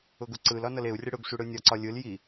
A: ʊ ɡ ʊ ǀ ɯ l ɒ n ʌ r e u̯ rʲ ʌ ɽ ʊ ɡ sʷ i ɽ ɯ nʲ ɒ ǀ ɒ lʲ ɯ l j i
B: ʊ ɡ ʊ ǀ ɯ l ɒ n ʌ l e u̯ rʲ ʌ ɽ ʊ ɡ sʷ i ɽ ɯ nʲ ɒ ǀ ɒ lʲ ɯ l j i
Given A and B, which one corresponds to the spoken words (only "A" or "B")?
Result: B